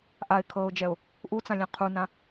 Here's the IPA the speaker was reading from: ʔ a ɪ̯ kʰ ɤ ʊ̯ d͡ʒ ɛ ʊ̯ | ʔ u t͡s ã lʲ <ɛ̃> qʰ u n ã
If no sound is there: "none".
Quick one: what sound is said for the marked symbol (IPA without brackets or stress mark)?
ɛ̃